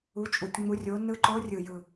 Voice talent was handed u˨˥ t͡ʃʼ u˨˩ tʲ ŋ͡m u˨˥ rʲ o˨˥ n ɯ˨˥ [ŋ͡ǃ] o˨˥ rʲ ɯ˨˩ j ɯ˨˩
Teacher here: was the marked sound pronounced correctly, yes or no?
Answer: no